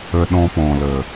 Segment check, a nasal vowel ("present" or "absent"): present